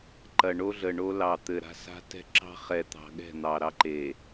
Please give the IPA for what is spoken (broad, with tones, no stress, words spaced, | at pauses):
ǃɐ˨ɳo˦ɮə˨ɳo˦ lɑ˨t̪ɘ˨ɾa̤˦sa̤˦ tɛ̤˦ǁɑ̤˦χɛ˨t̪ɑ̤˨ ɠɛ̤˦˨n̪ɑ˨ɾɑ˦ǃe˨